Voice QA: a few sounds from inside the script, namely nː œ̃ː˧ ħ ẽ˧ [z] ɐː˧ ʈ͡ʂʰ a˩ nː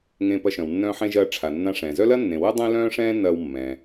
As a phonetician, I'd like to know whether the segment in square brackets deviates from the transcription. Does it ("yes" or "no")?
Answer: yes